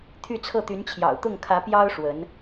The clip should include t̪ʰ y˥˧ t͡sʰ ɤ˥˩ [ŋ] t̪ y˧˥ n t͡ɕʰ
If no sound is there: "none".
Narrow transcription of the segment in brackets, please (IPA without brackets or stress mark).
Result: none